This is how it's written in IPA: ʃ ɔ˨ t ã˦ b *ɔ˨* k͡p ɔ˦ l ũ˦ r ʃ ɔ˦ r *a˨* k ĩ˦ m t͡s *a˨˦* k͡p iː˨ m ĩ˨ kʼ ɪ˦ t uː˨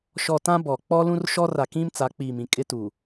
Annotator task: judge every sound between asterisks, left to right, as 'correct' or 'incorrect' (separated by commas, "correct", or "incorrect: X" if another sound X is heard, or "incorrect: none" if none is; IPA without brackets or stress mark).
correct, correct, correct